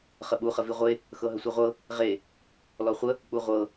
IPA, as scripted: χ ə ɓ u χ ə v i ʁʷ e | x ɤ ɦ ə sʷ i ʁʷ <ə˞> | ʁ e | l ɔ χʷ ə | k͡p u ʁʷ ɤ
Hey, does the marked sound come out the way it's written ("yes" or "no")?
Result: no